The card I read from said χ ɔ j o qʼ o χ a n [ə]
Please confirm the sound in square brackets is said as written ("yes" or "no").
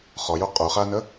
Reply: yes